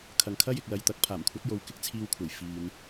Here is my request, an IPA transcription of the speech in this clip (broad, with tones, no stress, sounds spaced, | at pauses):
kʰ ɐ˨ ŋ kʰ ɐ˥ j ɪ˨ k̚ l ɐ˨ j t̪ ɐ˨˥ k̚ pʰ aː˨˩ m kʷʰ ɐ˨˥ t̚ j o˨˧ w k ɪ˧ k̚ t͡sʰ iː˧ w kʷʰ ɐ˨˩ j f iː˨ n